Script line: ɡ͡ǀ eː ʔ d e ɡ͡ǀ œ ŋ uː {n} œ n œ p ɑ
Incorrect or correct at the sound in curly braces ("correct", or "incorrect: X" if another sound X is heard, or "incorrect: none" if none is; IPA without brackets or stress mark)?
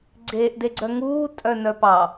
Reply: incorrect: tʼ